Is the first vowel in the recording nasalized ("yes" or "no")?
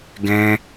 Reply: yes